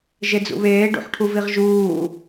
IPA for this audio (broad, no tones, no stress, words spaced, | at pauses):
ʒed͡zṵβeː ɖṵħʈʰuviʁʒuː